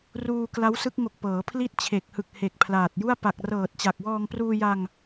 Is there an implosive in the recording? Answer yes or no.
no